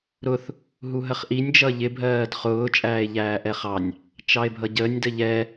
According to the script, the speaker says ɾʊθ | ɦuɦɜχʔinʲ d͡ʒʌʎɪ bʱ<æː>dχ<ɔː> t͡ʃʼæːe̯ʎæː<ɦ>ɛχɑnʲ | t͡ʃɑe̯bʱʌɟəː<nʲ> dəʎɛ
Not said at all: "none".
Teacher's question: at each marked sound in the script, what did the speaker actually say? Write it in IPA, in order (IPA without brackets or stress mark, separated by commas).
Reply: ɜː, ʊː, ʔ, nʲ